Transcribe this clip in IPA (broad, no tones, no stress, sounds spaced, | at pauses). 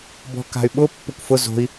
b ɔ̤ k a̤ y̯ ɓ ʊ pː ʊ kʷ f ʊ z o̤ i̯